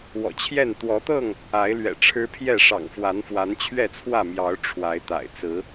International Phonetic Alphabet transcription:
w ɔ̰˨˩ t͡ɕʰ j ɛ˥˨ n t̪ w ɔ˨˦ t̪ ɤ˥˨ ŋ | a˨˦ ɪ̯ l ɥ ɛ̰˨˩ ʈ͡ʂʰ ɻ̩˦ pʰ j ɛ˥˨ ʂ ɑ̰˨˩ ŋ f w a˨˦ n f w a˨˦ n t͡ɕʰ ɥ ɛ˥˨ t͡sʰ w ä˥˨ m j ɑ˨˦ ʊ̯ ʈ͡ʂʰ w a˨˦ ɪ̯ t̪ a̰˨˩ ɪ̯ t͡s ɹ̩˨˦

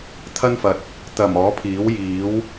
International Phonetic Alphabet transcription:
t̪ʰ ɐ˥ n f ɐ˨ t̚ | t̪ ɐ˨˩ m ɔː˨˥ pʰ iː˨˥ w j iː˨˥ w

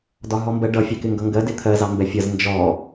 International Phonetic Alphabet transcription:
d ɒ ɦ ɔ m b ɜ ɖ ʌ fʲ ɛ k ɪ ŋ ɡ ʌ ŋ ɡ ɜ d ɪ t̪ʰ ɜ z ɑ m b ɛ fʲ ʌ z n d͡ʒ ɔ

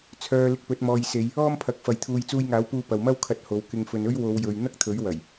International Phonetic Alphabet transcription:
t͡sʰ œː˧ l ɪ˧ k̚ p ɵ˨˥ t̚ m ɔː˨ j s e˨˧ j | ɔː˥ m pʰ ɐ˨˥ k̚ f ɐ˨˧ j t̪ʰ uː˧ j t͡s uː˧ j ŋ aː˨˥ w p uː˧ p ɐ˨ w m ɐ˥ w kʰ ɐ˧ t̚ h o˨˥ w k ɪ˧ ŋ f ɵ˨ n ɵ˥ ɥ w o˨˧ w j ɵ˨ ɥ n̪ ɐ˥ k̚ t̪ʰ ɵ˨˥ ɥ w ɐ˨˩ j

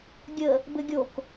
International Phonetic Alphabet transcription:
ɡʲ ə | b ɘ ɡʲ o k

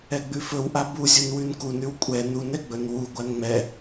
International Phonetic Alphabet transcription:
ɛ ɡ͡b ʉ f ɵ w ʔ a b u zʲ u n w ʉ n k u n ʉ w kʷʼ ɛ n u n ɛ ɡ͡b ɵ n w u ɡʷ a n ŋ͡m ɛ

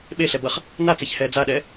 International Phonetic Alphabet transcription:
ɓ e ɬ ɛ b ʌ χ | n a t͡s e ç h ɛː d͡z a ɗ ɛː

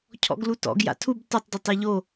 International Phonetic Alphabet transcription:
cʰ ɔ̰ ɡ l u t ɔ̰ ɡ j a̰ tʰ u b t ʌ tˤ d ɔ tˤ ɛ ʎ o

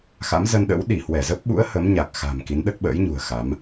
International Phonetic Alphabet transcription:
x a̰˧˥ m z ə˧ n ɗ ə̰˧˥ w ɗ i˧˩ h w ɛ˧˩ z ə˦˥ p̚ ɓ ṵ˧˥ ə̯ h ə˨˦ m ɲ a˨˩ k̚ x a̤˨˩ m k i˨˦ n ɗ ə˦˥ t̚ ɓ ə̰ː˧˥ j ɲ ṳ˨˩ ə̯ x a˨˦ m

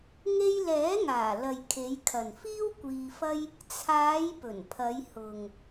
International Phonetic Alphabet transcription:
ŋ e˥ j l ɛː˨˥ ŋ aː˨˩ l ɐ˨ j kʰ e˨˧ j kʰ ɐ˨ n f iː˥ w kʷ iː˧ f ɐ˥ j | t͡sʰ aː˨˧ j p ɵ˨˩ n pʰ ɐ˨˧ j h ʊ˨ ŋ

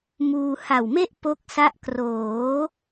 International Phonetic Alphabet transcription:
m uː˧ h a˨˩ w m e˥˩ ʔ p o˦˥ k̚ s a˦˥ ʔ k r oː˩˦

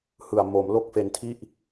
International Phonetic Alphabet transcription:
h ɯ˨˩ a̯ m o˩˦ m l o˥˩ k̚ f e˧ n tʰ i˥˩ ʔ

